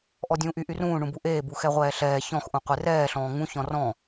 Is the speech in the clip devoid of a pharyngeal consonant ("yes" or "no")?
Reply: yes